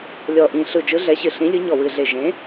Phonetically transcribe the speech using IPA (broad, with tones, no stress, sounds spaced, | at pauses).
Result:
lʲ ɔ˧˩ ʔ ĩ˧˩ ɬ ɯ˧˩ d͡ʒ ɯ˨˥ ɮ ɛ˨˥ ɕ ɨ˧˩ ɬ ĩ˨˥ lʲ ɯ˨˥ ɲ ɔ˧˩ w ɨ˧˩ ɮ e˧˩ ʒ ẽ˨˥